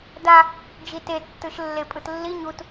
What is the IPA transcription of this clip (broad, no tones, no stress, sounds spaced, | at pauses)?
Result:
d a | d͡ʒ i t e tː ɯ ʃ lː e pʼ ɯ t lː i ɲ u t